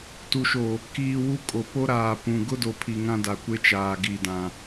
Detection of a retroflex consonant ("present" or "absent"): absent